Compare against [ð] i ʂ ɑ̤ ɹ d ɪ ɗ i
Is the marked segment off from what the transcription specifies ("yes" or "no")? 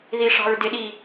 no